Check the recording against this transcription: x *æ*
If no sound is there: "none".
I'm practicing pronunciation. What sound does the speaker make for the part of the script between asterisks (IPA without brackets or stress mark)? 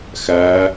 æ